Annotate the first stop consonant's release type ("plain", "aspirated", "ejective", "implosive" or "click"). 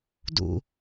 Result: plain